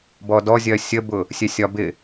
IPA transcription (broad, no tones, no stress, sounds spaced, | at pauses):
b ɔ d ɔ zʲ ɜ sʲ ə b ʊ | sʲ ɛ sʲ ɒ b ɪ